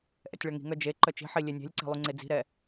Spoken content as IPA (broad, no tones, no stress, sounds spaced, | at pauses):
ʔ ɛ̰ tʲ ɭ œ ŋ i̤ ŋ œ d͡ʒ e ǃ œ t͡ʃ i̤ ħ i lʲ e nʲ e̤ lʲ ǀ e̤ lˠ y ŋ͡ǀ e d͡z i̤ ɾ ɛ